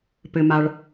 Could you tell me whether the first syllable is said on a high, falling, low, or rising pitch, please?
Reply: low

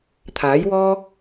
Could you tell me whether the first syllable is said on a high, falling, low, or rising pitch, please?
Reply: rising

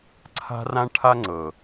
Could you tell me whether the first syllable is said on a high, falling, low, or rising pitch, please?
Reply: high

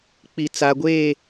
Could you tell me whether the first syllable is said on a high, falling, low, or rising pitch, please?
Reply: low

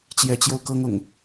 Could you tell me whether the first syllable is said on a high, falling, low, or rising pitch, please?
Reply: rising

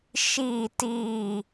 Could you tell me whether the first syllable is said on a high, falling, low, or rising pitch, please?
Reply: falling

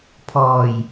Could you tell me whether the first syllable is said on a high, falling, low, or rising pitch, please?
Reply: low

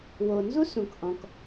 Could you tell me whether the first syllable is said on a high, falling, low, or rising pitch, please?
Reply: low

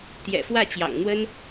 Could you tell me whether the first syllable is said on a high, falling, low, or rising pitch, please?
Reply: low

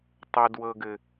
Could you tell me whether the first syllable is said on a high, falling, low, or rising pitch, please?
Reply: high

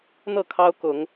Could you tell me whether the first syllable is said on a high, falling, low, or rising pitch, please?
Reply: falling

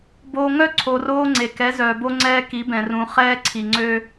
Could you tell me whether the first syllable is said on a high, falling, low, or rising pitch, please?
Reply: high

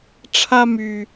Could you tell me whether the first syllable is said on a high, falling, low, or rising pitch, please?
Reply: high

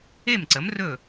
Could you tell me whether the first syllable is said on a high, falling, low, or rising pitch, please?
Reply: falling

